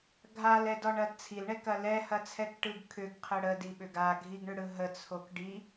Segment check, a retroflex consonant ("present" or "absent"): present